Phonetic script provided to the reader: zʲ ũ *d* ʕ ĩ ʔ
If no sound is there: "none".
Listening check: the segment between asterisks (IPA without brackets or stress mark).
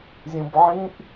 b